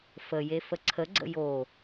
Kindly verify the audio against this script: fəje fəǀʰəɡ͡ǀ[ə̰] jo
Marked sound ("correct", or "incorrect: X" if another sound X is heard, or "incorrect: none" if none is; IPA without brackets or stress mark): correct